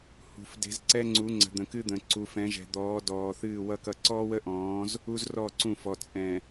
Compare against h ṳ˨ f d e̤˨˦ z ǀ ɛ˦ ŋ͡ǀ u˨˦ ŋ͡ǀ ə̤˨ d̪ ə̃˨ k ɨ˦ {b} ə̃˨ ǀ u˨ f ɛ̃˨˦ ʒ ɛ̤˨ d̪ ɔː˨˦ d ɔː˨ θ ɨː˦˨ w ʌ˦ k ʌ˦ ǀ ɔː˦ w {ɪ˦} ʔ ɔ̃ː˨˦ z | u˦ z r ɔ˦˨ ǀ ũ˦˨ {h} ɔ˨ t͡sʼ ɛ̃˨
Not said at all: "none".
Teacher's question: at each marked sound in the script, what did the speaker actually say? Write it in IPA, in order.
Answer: d̪, ə˦, f

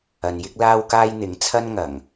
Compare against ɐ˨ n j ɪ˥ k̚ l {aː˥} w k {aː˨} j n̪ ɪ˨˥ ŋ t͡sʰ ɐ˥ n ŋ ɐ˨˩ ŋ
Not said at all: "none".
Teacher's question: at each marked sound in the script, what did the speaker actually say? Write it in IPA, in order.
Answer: aː˥, aː˥

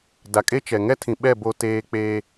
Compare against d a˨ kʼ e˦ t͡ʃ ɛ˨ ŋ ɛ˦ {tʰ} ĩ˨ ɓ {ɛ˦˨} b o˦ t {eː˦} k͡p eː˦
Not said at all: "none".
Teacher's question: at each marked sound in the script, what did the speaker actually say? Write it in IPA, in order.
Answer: tʰ, ɛ˦˨, eː˦

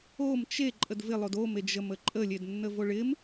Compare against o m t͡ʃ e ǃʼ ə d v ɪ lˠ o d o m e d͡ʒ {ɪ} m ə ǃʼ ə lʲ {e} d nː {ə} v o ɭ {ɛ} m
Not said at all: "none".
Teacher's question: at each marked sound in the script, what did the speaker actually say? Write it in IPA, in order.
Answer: ə, e, ə, ɪ

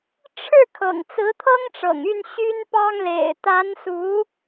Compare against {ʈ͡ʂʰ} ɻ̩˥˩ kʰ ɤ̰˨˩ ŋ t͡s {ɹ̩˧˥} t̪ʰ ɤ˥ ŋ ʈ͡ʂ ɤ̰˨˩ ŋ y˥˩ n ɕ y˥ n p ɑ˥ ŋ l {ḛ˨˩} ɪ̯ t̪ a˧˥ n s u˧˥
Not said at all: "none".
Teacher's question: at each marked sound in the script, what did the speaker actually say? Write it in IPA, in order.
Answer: ʈ͡ʂʰ, ɹ̩˧˥, ḛ˨˩

